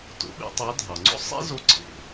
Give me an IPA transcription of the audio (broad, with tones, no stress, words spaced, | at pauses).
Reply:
to̰˧˥ɓḛ˥tˤɑ˧˥ dʱɑ˩ŋ͡ǀo̰˥ sˤḛ˥zo˧ ǀʰḛ˩